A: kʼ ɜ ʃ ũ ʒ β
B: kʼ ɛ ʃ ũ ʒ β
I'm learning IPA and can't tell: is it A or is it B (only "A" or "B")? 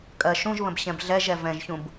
A